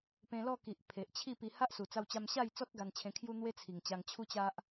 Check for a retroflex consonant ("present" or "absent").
absent